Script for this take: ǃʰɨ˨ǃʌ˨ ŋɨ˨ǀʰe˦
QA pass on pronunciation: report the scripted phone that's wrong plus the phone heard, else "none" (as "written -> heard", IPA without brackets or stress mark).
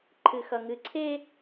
ǃ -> x